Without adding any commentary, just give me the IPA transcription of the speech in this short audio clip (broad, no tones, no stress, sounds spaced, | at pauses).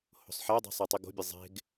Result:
h o̤ sˤ ħ æ dˤ e̤ sˤ i tˤ i ɡ o̤ bʲ e zˤ e̤ ɡ